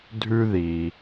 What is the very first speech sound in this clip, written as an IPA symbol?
dʱ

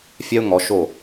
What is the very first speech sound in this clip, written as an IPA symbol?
fʲ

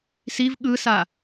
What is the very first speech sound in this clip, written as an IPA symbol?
s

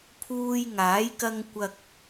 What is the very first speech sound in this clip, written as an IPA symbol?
pʰ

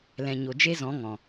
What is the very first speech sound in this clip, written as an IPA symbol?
l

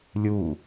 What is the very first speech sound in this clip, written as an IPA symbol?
lʲ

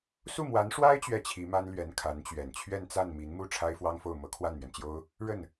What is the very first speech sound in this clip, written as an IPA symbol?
s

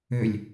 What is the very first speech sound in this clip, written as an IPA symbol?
ø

